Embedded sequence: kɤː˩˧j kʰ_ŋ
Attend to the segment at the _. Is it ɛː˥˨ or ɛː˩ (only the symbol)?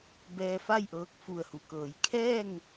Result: ɛː˥˨